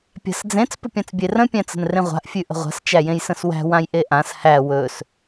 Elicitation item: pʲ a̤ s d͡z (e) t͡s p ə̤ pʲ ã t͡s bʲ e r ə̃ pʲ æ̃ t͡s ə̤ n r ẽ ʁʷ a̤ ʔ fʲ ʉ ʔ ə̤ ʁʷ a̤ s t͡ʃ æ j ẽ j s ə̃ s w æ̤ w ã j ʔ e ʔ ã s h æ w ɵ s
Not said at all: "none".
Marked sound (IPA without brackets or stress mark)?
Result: ẽ